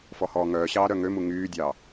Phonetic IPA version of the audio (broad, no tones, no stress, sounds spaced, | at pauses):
f ɔ h ɔː ŋ œː ɕ ɑː ɾ œ ŋ ø m u ŋ yː dʲ ɑ